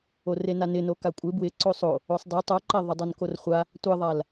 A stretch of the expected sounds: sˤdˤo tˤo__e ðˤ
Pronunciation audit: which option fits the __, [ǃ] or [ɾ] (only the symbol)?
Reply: ǃ